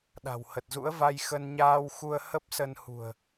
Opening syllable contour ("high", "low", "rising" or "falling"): low